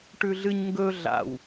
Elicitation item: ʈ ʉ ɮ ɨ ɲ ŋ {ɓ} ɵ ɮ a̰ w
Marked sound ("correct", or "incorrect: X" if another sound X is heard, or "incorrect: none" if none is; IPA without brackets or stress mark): incorrect: ɡ